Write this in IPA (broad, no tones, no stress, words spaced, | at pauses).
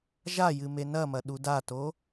ʒajɨme nɐmɐɗu dato